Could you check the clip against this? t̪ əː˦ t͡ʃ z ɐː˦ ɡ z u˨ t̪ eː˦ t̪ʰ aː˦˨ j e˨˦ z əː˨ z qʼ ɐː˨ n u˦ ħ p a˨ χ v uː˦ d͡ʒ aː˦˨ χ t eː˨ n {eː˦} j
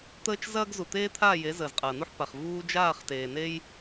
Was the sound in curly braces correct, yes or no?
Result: yes